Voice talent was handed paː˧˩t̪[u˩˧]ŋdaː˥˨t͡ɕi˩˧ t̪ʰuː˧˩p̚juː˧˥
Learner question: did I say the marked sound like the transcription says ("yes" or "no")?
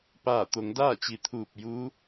no